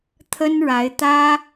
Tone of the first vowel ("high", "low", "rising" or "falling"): high